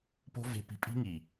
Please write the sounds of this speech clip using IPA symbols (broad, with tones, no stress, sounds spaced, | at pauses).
p o̤˦ v e̤˧ p i̤˧ pʼ i̤˦ ŋ i˨